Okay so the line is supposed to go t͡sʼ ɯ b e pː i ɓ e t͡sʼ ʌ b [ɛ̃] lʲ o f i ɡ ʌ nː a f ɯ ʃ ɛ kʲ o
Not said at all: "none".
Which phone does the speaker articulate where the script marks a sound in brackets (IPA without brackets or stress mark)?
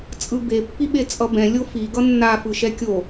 ɛ̃